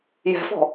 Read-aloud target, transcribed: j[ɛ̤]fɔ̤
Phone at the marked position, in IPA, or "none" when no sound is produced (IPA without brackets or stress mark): ɛ̤